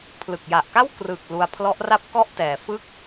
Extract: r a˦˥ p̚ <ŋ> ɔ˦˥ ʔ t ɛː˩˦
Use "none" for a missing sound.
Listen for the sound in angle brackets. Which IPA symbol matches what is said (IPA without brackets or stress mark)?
k